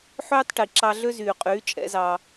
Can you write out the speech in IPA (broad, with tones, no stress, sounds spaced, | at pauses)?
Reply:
ħ øː˦ tˤ ʈ i˨ ǁ ɑ˧ ɮ ø˦ z yː˨ qʼ yː˨˦ t͡ʃʼ ɛ̰˨˦ z ɑː˧